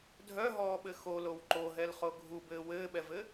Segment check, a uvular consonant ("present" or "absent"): present